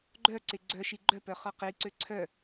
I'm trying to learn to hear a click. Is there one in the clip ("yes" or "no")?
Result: yes